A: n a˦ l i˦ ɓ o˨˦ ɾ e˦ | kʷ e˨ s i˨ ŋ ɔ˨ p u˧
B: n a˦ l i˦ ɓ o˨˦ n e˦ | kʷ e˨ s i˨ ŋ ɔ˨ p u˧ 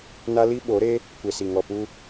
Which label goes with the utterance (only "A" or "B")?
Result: A